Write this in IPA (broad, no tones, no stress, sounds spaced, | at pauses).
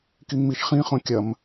k i ŋ m i ʃ χ ĩ χ õ kʲ ɐ m